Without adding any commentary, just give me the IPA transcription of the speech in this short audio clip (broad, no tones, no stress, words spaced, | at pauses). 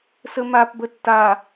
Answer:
səmapbə tːa